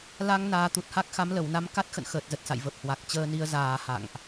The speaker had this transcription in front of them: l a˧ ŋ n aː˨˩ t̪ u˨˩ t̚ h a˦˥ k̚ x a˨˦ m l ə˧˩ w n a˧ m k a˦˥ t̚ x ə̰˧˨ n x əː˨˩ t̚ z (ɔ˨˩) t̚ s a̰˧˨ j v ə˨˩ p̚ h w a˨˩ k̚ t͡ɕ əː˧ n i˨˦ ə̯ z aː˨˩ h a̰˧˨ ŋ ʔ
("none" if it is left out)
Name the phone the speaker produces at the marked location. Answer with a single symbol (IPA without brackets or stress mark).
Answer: ə˨˩